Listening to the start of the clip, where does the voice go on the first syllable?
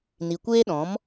low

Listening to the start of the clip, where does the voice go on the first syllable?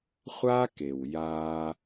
high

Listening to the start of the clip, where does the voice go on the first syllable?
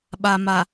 low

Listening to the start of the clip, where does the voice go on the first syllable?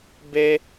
high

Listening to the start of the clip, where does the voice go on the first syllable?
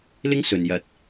high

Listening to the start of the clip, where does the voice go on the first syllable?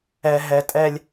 high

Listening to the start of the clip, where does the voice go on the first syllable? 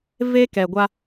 high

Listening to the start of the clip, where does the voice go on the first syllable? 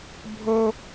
high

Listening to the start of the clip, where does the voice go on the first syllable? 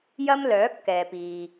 high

